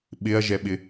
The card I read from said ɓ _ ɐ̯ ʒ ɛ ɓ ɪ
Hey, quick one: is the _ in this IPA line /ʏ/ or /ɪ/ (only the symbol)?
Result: ɪ